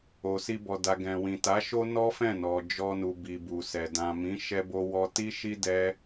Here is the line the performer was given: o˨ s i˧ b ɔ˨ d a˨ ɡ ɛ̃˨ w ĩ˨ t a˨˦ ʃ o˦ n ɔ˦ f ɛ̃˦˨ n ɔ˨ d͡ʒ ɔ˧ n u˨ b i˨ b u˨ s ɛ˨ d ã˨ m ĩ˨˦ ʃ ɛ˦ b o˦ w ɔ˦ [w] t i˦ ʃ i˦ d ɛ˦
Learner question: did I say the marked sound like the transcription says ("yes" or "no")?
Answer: no